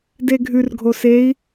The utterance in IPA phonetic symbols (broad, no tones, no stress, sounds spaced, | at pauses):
d e ɡʱ ʉ r ɡʱ o s e i̯